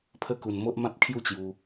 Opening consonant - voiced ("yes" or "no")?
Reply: no